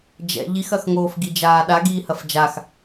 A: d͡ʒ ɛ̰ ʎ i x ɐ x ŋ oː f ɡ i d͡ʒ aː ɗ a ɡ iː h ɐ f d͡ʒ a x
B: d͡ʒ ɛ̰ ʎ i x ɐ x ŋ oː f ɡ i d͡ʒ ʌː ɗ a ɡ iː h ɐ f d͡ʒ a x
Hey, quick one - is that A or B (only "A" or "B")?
A